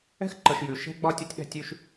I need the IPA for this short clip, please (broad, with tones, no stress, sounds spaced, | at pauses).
ɛ̤˥ x ǃ ə˨ ʃ j ʉ˩ ʃ ɛ̤˥ ɡ͡b ɒ˥ tʲ o˥ tʲ ɗ ɛ̤˦ tʲ ʉ˦ ʃ